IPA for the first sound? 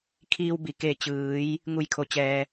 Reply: kʰ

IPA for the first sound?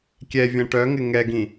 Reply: kʲ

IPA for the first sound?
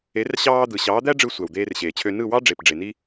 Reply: e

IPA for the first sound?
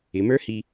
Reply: ɪ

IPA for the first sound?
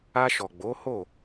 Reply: a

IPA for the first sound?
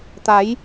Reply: t̪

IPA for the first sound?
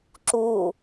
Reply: ǁ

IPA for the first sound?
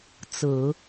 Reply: t͡s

